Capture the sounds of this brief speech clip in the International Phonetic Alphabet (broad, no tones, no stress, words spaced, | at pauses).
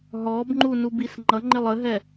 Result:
ɦɔbŋ͡ǃu nubisŋ͡ǃʌŋ͡ǃɪlˠ əɦɛ